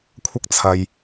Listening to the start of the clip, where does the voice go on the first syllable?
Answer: high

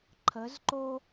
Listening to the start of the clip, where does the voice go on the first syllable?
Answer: rising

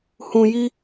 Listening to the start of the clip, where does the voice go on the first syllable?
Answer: low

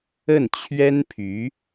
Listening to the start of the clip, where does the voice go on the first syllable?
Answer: falling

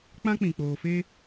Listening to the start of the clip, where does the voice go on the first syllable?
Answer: high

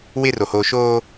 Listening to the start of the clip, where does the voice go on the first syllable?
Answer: high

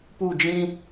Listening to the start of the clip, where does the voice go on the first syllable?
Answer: falling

